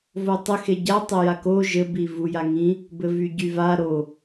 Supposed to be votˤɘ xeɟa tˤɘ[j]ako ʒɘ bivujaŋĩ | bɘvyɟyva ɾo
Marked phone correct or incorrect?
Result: correct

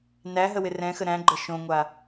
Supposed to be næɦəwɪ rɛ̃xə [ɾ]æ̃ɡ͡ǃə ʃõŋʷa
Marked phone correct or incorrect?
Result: correct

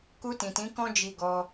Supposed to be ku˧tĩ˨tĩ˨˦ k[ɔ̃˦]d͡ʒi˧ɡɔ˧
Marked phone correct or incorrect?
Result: correct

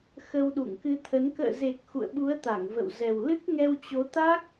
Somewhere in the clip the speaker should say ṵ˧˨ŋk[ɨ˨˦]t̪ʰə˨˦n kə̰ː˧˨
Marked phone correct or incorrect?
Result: incorrect: ɨ˧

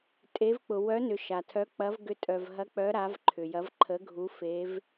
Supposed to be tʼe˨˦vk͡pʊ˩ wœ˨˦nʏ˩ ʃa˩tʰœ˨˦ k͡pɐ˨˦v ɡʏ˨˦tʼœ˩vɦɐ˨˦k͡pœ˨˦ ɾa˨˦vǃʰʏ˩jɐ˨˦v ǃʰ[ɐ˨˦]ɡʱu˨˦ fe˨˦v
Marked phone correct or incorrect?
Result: incorrect: ə˨˦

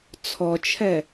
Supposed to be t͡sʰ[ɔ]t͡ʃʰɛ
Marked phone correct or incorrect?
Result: correct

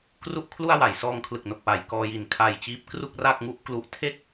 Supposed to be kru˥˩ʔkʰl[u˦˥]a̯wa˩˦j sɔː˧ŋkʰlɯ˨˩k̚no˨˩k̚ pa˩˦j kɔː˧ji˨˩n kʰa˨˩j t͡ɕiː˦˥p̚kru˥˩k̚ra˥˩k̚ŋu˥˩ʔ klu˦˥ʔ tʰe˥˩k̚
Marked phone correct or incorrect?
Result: incorrect: u˥˩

